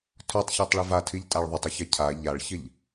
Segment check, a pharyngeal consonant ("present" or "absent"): absent